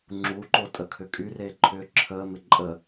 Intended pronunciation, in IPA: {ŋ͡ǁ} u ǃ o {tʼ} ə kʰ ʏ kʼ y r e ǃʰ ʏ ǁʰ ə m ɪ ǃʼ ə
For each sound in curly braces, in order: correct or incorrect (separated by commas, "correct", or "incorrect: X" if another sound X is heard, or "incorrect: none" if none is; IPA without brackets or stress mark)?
correct, correct